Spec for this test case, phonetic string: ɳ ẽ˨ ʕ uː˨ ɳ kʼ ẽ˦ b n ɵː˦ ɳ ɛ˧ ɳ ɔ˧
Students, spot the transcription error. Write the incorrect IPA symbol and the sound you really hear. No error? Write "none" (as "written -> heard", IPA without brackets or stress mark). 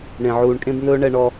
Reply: none